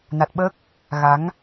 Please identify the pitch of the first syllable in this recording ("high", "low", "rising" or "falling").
low